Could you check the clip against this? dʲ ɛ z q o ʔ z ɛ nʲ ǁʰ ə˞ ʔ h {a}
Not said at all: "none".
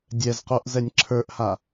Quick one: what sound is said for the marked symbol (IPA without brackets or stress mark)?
a